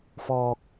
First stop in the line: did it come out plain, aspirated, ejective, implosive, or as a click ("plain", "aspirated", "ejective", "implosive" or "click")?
plain